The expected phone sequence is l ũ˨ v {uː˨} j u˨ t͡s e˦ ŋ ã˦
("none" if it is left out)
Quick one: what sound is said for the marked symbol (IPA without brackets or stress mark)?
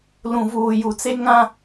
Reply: uː˨